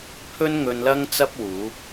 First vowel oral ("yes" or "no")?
yes